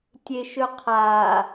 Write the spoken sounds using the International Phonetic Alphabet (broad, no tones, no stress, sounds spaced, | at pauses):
tʲ e ʃ ɵ qʰ a